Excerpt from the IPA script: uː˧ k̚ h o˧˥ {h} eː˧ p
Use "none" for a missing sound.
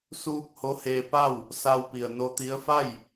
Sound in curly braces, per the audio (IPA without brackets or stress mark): h